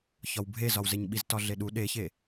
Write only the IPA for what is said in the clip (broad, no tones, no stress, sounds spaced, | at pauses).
ç ɒ w bʱ e z ɒ w z e ɲ ɓ i z t ɒ ɮ e ɗ u ɗ e ç e